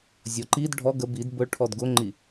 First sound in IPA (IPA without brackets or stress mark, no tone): zʲ